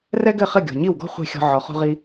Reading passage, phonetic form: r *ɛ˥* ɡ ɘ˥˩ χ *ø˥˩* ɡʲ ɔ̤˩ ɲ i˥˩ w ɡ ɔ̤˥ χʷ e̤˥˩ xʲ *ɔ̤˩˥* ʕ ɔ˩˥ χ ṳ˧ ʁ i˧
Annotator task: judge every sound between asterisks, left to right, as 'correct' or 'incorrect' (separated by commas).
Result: correct, incorrect, incorrect